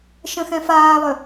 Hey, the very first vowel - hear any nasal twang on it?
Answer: yes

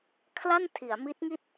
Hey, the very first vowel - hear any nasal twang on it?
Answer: no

